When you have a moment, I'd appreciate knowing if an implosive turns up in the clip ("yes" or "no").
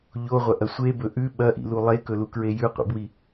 yes